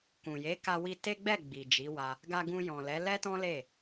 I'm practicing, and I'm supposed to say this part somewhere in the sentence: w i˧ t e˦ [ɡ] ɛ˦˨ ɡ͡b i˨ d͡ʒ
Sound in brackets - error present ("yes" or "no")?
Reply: yes